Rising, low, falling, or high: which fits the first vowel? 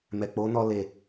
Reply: low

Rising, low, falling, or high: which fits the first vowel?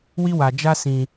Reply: high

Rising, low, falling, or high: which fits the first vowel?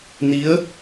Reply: rising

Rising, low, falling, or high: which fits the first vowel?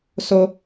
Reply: high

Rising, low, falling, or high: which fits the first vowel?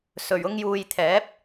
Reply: low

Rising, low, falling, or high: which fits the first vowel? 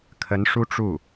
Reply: rising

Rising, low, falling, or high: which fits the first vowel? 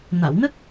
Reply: low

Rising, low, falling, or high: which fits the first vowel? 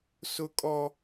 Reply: high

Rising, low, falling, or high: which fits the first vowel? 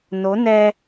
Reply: rising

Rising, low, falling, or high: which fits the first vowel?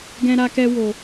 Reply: high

